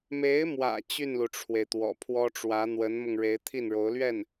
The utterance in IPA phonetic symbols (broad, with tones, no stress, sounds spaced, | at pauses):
m e˧˥ ɪ̯ m w ä̰˨˩ t͡ɕ y˥˩ n l u˩ ʈ͡ʂʰ w e˩ ɪ̯ t̪ w ɔ̰˨˩ pʰ w ɔ˥ ʈ͡ʂ w ä˧˥ n̪ w ə˧˥ n m ʊ˧ ŋ ɻ e˧˥ ɪ̯ t̪ʰ i˥˩ n ɻ o˧˥ ʊ̯ l ɥ ɛ˥˩ n